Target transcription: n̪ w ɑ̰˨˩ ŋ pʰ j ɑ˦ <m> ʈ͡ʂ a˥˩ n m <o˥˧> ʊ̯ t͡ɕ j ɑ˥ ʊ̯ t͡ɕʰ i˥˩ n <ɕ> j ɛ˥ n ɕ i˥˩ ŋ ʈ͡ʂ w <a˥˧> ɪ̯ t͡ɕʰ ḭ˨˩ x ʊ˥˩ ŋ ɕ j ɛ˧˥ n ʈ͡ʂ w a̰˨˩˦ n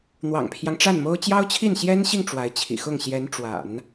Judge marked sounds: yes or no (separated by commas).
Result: no, no, yes, no